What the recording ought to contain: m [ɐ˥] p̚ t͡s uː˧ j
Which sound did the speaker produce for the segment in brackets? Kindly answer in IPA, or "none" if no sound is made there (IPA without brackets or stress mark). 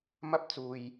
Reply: ɐ˥